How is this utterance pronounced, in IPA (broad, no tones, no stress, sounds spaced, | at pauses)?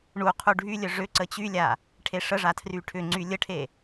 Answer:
ɳ u qʰ u ɖʱ y lʲ œ ʐ ʏ ǀ ə t͡ɕ y lʲ a | ʈʰ e ʂ ə ʐ a tʰ r y ʈʰ ʏ ŋ͡ǀ y lʲ ə ʈʰ e